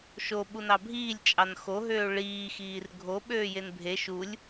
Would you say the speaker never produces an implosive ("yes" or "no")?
no